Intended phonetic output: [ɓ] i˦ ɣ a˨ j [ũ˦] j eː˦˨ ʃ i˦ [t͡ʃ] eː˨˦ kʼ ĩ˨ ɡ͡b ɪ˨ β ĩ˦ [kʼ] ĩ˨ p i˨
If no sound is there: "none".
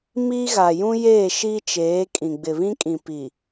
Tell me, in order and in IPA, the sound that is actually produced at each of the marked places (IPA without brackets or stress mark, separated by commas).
m, ũ˦, t͡ʃ, kʼ